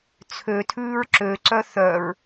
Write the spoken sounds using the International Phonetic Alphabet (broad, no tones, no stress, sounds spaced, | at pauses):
t͡sʰ ø tʰ ʉː ɹ ǁ ø ǀ œ θ œ ɹ